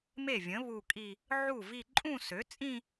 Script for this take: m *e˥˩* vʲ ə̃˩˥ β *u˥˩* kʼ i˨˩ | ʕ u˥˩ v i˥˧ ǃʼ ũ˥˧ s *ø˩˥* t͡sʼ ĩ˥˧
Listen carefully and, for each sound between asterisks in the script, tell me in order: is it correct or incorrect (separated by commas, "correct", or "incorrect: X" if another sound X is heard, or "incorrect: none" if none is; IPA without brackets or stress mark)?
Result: correct, incorrect: u˨˩, correct